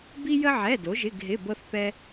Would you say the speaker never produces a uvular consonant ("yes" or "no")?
yes